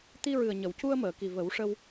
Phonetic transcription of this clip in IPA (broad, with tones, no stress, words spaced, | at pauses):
t̪i˧ɹɨ˨˩ə̯ ɲə˨˩˨wcu˧ə̯məː˨˩˨ki˨˩ və˨˩˦wʂə˧w